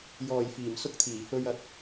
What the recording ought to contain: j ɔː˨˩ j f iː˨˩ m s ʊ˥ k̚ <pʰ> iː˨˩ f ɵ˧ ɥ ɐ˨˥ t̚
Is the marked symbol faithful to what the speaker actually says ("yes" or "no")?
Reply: no